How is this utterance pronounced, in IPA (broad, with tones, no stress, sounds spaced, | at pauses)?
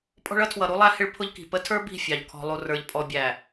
pʼ ɔ̤˦ ɭ ʌ˦ tʰ w ʌ˨ ɾ u˦ lˠ æ˦ h ɪ˦ ɭ pʰ ʊ˦ ʎ k i̤˨ p ə˦ tʰ ə˞˦ b i̤˦˨ fʲ ɑ˨ ʎ kʰ ɔ̤˨ lˠ u˨ r ə˞˨ ʎ pʼ ɔ˨ bʲ æ˨